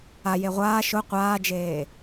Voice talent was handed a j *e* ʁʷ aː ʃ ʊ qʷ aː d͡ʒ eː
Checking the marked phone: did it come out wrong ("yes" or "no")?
no